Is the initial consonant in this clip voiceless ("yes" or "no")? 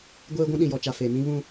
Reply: no